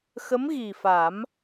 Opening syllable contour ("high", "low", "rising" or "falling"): rising